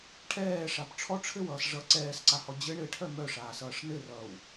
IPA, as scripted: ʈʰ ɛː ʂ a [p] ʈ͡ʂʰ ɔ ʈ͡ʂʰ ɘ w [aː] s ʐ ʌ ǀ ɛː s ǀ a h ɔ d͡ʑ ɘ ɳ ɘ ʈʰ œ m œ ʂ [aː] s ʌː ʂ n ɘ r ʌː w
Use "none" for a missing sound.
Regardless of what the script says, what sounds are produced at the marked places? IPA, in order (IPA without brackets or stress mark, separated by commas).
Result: p, ʌː, aː